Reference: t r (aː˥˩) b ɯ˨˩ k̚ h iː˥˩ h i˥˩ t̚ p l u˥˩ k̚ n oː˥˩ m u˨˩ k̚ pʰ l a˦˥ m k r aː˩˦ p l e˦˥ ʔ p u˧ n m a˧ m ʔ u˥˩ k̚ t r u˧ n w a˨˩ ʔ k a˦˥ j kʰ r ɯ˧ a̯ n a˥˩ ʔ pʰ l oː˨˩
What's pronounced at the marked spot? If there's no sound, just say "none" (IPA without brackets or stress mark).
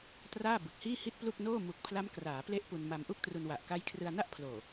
aː˥˩